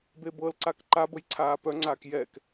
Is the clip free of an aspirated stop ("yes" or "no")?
no